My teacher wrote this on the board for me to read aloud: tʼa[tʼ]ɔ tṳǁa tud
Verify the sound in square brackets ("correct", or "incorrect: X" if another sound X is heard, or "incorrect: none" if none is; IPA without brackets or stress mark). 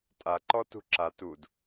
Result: incorrect: ǃ